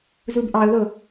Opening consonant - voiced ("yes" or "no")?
yes